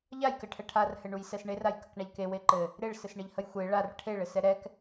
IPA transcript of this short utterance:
ʎajkɘʈʰɛ ʈʰarhɘɳujsɛs ɳerajkəkɳaʎ kewe ǃɘ | ɾeɭsɘsɳɘʎhəj xʷe ɭar ʈʰeɭɘsɛ ɾɛk

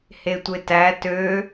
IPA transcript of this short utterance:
hetʷetæ tø

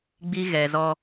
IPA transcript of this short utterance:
ɡ͡bi˦ɣɛ˨zɔ˦

